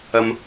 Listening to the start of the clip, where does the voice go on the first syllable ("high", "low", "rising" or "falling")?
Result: high